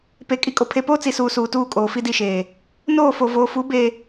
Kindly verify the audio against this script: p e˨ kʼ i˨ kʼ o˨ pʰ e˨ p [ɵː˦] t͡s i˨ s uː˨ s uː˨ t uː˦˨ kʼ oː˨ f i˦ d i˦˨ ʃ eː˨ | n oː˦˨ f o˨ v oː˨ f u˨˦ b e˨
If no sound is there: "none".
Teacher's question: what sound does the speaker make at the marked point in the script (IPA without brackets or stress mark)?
oː˦